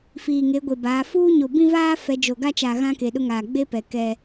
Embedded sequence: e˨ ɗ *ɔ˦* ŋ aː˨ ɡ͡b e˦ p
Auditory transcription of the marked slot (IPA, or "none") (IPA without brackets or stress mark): ʊ˦